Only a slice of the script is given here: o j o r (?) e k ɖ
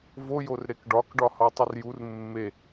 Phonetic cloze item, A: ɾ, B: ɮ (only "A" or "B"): A